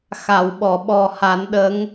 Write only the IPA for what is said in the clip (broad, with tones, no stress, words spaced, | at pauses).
xa˨˩˨w ɓɔ˨˩˨ɓɔ˨˩ha˨˩˦n ɗə˧˥ŋ